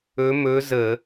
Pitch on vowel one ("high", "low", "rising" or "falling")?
rising